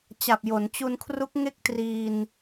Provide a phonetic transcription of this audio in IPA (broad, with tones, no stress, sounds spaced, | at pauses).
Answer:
t͡ɕ a˨˩ p̚ j o˩˦ n t͡ɕ u˧ n kʰ r u˦˥ k̚ ŋ e˥˩ k̚ t r iː˧ n